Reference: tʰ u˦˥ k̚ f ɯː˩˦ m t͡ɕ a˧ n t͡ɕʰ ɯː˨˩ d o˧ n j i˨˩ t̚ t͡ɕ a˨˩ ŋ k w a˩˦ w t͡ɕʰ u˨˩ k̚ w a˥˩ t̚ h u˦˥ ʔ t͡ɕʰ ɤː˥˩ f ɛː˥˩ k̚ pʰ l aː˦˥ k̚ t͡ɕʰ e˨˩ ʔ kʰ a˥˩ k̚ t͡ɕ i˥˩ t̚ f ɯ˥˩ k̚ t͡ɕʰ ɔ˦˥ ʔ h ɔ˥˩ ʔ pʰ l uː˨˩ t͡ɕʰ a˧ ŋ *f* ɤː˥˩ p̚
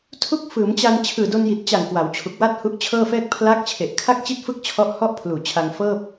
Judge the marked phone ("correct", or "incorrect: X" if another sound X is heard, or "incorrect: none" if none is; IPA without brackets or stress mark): correct